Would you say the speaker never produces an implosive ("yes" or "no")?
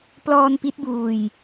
yes